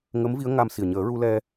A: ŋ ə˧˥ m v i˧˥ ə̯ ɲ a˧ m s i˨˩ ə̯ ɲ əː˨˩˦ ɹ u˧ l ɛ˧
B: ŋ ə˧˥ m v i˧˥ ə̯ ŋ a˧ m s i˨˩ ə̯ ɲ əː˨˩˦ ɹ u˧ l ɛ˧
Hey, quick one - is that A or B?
B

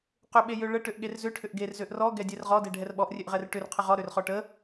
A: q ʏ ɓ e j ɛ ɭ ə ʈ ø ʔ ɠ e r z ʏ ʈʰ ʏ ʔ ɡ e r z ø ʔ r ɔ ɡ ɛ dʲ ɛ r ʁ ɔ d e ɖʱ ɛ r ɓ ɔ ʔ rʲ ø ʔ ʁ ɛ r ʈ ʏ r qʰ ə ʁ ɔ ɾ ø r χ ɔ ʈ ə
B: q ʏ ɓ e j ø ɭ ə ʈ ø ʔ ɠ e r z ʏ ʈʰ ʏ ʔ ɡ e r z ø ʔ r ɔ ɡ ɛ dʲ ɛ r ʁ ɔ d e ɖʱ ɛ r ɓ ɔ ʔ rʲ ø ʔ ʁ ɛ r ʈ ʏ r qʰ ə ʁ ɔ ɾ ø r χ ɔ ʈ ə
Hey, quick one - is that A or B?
B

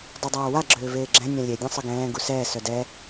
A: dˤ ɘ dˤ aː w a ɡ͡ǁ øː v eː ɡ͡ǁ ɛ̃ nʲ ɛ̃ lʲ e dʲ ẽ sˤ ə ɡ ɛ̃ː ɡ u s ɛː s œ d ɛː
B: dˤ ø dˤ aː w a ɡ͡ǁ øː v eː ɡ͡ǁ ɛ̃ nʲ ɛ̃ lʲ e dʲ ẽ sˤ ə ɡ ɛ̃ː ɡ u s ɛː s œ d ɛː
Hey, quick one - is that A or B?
B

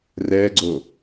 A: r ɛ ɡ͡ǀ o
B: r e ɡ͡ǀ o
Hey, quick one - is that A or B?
A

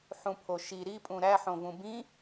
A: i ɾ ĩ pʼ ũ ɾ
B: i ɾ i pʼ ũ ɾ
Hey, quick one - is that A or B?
B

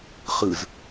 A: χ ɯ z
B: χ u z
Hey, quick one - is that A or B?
A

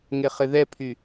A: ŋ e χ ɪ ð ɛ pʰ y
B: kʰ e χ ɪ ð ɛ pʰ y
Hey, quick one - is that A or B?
A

